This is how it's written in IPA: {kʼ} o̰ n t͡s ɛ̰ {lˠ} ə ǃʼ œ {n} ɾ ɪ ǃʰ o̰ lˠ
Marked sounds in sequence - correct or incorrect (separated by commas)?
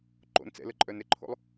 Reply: incorrect, incorrect, correct